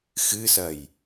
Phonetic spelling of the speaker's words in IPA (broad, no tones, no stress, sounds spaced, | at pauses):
x ɨ s ɐ j